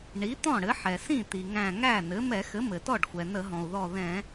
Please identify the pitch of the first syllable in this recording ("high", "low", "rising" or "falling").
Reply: rising